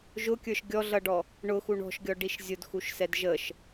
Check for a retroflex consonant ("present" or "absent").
present